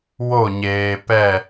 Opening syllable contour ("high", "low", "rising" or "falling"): falling